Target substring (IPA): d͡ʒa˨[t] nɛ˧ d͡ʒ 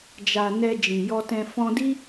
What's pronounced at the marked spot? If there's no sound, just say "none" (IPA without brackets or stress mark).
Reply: none